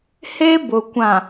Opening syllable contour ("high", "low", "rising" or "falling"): high